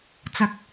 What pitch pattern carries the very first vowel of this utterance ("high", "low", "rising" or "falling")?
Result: rising